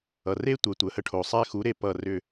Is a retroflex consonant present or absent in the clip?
present